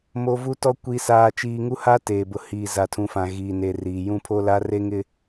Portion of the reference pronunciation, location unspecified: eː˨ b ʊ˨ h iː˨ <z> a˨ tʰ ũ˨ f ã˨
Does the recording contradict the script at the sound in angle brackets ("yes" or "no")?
no